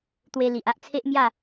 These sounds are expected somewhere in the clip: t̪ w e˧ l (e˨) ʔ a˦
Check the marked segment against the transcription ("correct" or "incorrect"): incorrect